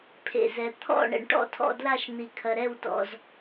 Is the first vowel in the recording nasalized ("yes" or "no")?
no